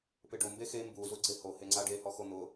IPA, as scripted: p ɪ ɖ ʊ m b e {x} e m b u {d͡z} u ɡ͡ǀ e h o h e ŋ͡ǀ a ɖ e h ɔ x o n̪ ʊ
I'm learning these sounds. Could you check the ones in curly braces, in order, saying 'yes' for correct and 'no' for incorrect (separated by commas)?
yes, no